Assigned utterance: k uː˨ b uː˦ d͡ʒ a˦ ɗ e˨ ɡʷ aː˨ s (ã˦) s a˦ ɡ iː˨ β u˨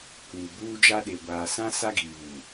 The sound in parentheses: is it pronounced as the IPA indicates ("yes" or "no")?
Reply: yes